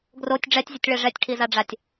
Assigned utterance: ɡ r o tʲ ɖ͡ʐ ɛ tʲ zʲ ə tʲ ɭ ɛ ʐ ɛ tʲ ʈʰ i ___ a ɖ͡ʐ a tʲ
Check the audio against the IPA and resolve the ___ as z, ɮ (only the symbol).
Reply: z